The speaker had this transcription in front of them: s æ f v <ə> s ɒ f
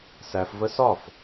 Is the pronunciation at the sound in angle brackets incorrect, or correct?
correct